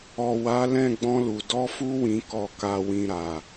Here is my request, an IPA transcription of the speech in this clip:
ɔ˨ w a˨˦ l ɛ̃˦˨ ɡ͡b ɔ̃˧ l u˨ d ɔ˨˦ f u˧ w ĩ˨ k ɔ˨ k a˨ w ĩ˨ ɾ a˨

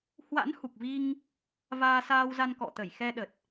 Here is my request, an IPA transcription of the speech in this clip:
h w a̰˧˥ n h u˨˩ k̚ v i˧ ŋ | v aː˧ s aː˧ w z a˧ n k ɔ̰˧˨ t̪ ə˧˩ j x ɛ˧ ɗ ə˨˩ t̚

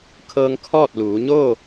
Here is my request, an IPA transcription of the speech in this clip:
kʰ ɤː˧ ŋ kʰ ɔː˥˨ t̚ l uː˩˧ ɲ oː˥˨

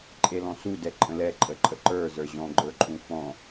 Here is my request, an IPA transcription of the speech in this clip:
ǃʼ e l ɔ̃ s u d ɛ ǃʼ ə̃ l ɛ ǃʼ ə ǃʼ ə ǃ ə˞ z ə˞ ʑ ɔ̃ ɡ͡ǃ ə˞ ǃʼ ũ f ɔ̃

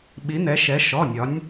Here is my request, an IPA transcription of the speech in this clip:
ɓ i˩˧ n ɛ˩˧ ʃ ɛ˩˧ ʃ ɔ˩˧˩ nʲ ɒ˩˧ nʲ

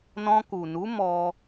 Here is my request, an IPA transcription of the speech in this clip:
n ɔ̃˧ k u˨ n u˨˦ m ɔ˧

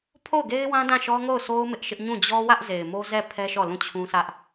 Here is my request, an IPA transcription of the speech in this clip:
pʰ o˦˨ ʊ̯ ɡ e˦ ɪ̯ w ã˦ d ã˦˨ ʃ ɔ˦ ŋ o˦˨ ʊ̯ sʰ o˦ ʊ̯ m ɪ˦ ʔ ʃ ɪ˦ ʔ ɲ ũ˦˨ d͡ʑ ɔ˦ w ä˦ ʔ z e˨ ɪ̯ m o˦ z ɛ˦˨ pʰ ɛ˦ ʃ ɔ˦˨ l ũ˦˨ t͡ɕʰ ũ˦ sʰ ä˦ ʔ

